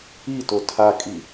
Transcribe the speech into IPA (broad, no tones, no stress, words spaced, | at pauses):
ito tʰakʼi